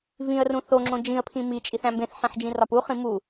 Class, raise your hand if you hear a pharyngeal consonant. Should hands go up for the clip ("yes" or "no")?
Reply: yes